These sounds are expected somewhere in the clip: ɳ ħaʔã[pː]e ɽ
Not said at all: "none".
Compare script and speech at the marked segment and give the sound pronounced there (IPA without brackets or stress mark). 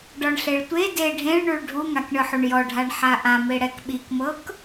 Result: m